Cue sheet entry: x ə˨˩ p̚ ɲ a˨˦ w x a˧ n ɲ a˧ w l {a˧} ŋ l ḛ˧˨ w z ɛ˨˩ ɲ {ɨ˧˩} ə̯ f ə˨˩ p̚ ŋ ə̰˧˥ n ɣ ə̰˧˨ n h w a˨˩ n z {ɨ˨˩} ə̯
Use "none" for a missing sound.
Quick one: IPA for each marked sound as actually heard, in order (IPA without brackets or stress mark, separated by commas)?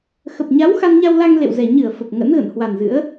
a˧, ɨ˧˩, ɨ̰˧˥